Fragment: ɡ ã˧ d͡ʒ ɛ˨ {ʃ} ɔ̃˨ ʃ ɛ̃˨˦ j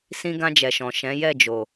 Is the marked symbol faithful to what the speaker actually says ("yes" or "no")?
yes